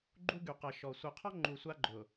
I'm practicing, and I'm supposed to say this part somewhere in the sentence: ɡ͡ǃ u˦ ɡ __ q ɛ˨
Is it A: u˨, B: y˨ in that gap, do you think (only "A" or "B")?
B